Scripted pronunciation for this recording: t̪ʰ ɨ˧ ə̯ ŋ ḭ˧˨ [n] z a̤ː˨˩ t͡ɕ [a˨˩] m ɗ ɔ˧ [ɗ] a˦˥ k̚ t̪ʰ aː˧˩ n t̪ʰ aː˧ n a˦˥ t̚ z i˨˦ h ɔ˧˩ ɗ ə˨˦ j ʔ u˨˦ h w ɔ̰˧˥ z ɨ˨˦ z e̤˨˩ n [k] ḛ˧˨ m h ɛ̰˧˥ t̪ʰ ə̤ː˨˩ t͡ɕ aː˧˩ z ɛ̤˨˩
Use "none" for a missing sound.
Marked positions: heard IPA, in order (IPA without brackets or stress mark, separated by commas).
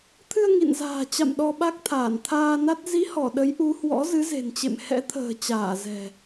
n, a̰˧˨, ɓ, t͡ɕ